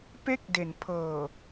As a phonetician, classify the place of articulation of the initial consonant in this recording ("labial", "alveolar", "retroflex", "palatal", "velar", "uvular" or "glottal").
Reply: labial